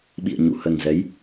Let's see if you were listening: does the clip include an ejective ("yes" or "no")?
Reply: no